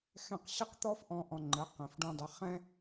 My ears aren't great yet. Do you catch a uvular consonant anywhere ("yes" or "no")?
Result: yes